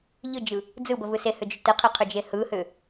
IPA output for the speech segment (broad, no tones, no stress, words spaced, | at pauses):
ʎɯd͡ʒɯ | d͡zɯbəvɯ sehʏd͡ʒʏ təqʰeqʰʏd͡ʒe hɯhʏ